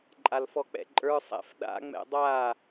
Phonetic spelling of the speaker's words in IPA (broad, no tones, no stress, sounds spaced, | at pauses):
ǃʼ a l f ɔ k͡p ɛ̰ ǃʼ ə˞ sˤ ɛ̰ f ɗ a̰ ŋ͡m ɛ̰ dˤ a